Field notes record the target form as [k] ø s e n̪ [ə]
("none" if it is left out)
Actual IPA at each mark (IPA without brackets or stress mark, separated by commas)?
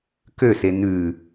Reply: k, ʉ